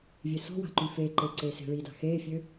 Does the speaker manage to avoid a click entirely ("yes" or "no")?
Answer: no